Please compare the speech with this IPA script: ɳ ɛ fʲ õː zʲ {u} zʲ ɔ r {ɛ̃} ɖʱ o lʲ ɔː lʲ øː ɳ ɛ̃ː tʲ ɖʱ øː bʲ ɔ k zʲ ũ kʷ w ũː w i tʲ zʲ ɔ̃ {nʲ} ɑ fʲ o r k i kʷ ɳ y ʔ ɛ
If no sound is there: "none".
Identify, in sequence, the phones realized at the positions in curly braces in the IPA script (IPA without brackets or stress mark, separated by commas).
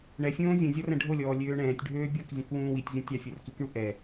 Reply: ũ, ɛ̃, tʲ